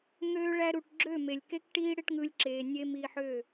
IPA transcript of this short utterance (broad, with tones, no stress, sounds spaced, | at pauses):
ŋ øː˧ ɭ æ˧ ɾ u˨ ʈ ɡ͡ǁ ø˦˨ m e˨ lʲ k e˦ k ʈ iː˦ ɽ e˦ ʈ ŋ ɯ˧ lʲ ǁ eː˨ nʲ e˧ m iː˧ ħ ø˦˨